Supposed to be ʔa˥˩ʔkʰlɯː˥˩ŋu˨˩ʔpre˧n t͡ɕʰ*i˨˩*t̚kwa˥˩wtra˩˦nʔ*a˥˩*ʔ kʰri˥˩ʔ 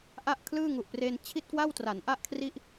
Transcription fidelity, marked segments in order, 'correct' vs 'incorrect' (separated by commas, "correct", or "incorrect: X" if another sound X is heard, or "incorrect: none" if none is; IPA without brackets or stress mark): incorrect: i˥˩, correct